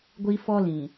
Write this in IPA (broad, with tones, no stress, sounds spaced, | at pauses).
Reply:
ɡʷ i˦ f ɔ˦ l ĩ˨